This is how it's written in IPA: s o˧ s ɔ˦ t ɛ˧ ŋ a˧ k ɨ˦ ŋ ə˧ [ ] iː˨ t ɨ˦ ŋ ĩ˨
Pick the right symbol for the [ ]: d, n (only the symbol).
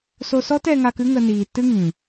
n